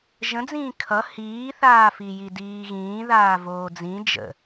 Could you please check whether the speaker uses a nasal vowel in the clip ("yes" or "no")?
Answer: yes